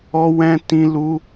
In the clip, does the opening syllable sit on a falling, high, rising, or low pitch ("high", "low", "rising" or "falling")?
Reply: high